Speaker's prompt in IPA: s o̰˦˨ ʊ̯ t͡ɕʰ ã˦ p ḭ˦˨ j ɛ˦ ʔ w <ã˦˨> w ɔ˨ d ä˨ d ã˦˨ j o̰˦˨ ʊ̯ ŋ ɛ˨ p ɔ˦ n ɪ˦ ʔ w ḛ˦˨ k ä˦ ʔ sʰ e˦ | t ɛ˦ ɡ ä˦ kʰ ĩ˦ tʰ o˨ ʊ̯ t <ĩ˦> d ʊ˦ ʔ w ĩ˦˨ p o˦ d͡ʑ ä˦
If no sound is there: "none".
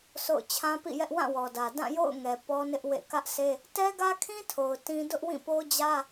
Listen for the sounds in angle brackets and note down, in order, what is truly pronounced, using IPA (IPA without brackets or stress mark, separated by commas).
ã˦˨, ĩ˦